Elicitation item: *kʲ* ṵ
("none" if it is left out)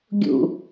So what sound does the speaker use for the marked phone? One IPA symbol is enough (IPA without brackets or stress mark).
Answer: ɡʲ